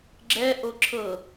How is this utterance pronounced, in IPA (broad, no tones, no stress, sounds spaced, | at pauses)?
ɡ͡ǁ ɛ ʔ o ǁʰ ɤ